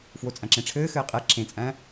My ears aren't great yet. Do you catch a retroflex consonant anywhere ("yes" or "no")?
yes